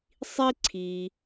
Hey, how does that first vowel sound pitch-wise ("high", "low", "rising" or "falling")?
high